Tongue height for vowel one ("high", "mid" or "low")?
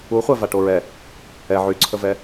high